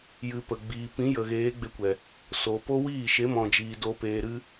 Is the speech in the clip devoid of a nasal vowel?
no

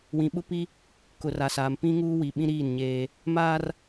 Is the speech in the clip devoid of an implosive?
no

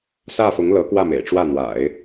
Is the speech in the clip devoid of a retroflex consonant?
no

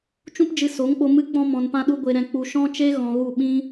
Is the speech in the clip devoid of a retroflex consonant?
yes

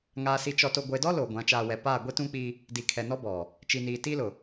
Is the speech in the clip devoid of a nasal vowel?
no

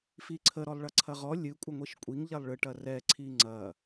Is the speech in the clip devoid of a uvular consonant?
no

